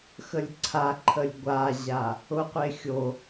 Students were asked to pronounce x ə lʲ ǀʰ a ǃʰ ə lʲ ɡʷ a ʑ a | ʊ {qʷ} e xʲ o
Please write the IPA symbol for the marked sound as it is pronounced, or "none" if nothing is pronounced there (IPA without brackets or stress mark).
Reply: qʷ